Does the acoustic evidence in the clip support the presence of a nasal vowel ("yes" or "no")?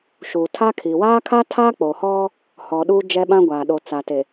yes